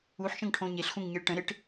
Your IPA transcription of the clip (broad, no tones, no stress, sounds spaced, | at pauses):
u ħ ʃ ə̃ ŋ ʈʰ õ ɲ e ɬ x ũ ŋ ɲ i ɭ ʈ ə̃ ɾ ɪ ʈ